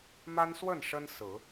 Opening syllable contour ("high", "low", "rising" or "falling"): high